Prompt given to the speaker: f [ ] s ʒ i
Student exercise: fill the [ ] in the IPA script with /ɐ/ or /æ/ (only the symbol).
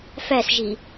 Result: æ